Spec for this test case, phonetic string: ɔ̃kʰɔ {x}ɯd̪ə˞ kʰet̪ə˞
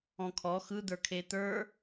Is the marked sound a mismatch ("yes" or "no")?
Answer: no